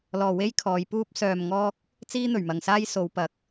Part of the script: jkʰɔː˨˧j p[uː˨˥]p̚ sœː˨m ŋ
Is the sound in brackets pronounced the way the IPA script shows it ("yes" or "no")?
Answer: no